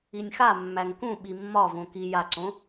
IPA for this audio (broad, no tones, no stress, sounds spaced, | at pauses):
i nʲ x a mː æ ŋ k ũ ɓ i mː ɒ v õ k i j a ǀ õ